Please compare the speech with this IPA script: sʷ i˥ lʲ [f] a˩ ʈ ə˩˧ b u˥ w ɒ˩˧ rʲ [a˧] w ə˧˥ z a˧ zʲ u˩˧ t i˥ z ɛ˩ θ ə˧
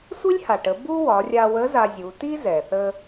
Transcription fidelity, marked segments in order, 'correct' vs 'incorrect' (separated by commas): incorrect, correct